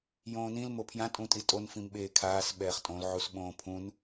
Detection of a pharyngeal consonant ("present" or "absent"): present